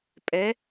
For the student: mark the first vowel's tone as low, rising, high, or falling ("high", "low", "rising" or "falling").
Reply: rising